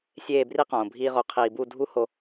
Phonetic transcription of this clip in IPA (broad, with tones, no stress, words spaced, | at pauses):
sʲeː˦˨bri˦ qõː˨bʱiː˦ʁo˧ qʰiː˨bu˦˨dʱu˦ho˧